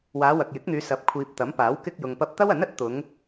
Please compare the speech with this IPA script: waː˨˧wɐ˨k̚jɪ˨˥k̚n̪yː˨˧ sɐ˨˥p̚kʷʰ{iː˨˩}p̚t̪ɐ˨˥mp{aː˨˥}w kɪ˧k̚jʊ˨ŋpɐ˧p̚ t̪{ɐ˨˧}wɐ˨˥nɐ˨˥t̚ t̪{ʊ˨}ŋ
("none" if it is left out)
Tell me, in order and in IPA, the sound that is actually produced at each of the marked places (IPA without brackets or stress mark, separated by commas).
iː˨, aː˨˥, ɐ˥, ʊ˨˧